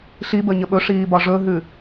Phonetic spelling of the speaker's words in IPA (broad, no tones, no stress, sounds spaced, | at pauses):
ɬ i b əː ɲ ə ɓ ɵ ʂ iː b ɒ ʐ ɵ ɦ ʉ